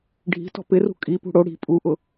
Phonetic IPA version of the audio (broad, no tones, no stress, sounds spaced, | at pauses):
ɖʱ i̤ t ɔ̤ p ɪ r ṳ kʼ i p ṳ ɽ o ɽ i̤ pʼ u ʔ ʊ